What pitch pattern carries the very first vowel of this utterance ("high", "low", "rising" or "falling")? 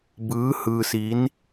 rising